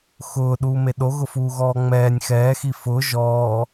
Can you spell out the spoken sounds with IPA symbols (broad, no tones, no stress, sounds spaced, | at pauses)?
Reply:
x ʊː ɗ uː m e ɗ o ɣ ʊ f uː ɣ ɔː ŋ͡m ɛː nʲ x ɛː x i f ʊ ʒ ɔː